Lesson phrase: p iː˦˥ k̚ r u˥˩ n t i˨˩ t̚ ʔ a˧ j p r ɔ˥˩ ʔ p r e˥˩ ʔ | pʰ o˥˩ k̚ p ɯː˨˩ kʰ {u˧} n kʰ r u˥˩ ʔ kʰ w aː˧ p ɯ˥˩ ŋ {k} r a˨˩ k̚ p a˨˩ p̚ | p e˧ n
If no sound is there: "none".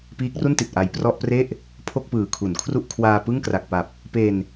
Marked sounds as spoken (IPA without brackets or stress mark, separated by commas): u˩˦, k